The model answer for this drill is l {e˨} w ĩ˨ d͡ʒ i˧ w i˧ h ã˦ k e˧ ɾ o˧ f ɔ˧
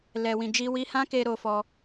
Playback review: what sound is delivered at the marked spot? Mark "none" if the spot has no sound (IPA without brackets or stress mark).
ɛ˨